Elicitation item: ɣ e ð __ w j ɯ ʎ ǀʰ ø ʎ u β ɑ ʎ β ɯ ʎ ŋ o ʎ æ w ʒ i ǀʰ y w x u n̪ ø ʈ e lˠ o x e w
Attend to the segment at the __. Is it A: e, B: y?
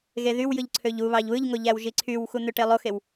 B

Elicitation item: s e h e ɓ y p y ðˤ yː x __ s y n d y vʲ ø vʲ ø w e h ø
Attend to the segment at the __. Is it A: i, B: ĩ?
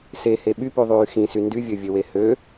B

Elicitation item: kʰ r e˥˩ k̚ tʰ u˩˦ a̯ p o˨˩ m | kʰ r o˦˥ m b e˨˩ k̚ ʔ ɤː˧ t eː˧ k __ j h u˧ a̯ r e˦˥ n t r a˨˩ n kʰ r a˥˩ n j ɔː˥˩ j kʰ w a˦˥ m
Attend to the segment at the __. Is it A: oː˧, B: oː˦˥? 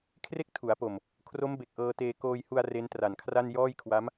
A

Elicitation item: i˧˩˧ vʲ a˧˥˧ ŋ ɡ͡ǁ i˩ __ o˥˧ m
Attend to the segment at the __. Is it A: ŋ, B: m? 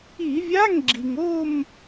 A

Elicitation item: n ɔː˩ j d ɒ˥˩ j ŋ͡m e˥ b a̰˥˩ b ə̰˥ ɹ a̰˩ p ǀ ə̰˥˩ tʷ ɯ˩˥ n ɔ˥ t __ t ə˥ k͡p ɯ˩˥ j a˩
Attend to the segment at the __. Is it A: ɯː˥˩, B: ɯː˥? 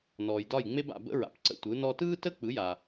B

